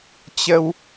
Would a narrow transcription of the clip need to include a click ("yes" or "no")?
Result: no